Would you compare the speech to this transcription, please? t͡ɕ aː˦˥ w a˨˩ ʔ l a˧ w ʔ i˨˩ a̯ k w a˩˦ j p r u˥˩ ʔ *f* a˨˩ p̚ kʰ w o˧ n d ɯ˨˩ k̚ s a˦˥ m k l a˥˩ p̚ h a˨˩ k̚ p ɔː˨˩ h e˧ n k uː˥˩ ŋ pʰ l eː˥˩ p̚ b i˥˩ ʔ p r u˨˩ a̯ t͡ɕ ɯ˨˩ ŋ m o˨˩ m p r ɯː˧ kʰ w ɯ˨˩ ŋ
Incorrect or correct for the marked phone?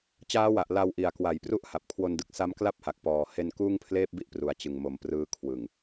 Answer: incorrect: h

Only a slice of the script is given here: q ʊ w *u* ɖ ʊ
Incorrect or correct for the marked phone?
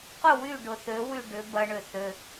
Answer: incorrect: y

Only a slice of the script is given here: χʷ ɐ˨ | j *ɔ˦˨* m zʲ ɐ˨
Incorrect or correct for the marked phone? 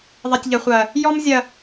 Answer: incorrect: ɔ˦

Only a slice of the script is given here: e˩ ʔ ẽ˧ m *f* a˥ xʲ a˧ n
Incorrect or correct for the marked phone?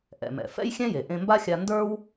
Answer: incorrect: b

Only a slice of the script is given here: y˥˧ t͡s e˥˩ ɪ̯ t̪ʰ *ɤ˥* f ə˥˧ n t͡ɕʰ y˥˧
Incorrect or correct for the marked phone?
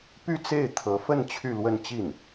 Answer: incorrect: ɤ˧˥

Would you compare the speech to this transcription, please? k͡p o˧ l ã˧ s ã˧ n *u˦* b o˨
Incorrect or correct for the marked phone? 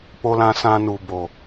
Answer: incorrect: u˨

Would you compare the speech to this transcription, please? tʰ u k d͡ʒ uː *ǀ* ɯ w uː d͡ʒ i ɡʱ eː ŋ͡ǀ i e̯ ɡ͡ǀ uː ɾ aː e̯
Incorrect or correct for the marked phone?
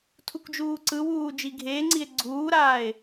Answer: correct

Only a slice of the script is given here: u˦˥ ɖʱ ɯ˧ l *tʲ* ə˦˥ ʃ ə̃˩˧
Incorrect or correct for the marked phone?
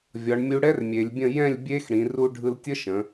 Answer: correct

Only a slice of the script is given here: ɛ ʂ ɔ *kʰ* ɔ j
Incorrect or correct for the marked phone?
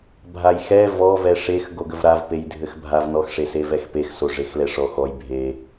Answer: incorrect: x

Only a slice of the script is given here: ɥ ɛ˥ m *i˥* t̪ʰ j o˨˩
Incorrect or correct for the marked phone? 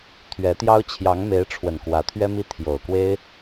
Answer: correct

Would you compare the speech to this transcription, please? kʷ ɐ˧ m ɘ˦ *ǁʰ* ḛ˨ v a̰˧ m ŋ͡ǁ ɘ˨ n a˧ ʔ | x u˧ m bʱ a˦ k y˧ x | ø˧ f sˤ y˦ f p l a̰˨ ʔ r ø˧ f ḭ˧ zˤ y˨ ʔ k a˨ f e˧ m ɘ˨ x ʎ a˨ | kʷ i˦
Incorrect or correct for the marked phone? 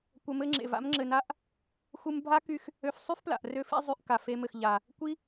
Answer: incorrect: ŋ͡ǁ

